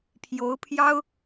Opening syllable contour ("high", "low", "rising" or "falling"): rising